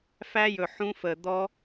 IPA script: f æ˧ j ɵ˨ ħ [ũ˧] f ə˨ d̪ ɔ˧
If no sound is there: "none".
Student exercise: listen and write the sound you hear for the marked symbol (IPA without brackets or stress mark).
ũ˧